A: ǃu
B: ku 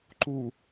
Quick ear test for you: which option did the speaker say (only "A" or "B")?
A